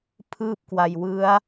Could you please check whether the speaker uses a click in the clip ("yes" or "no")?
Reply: no